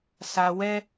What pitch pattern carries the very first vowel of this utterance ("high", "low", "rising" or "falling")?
low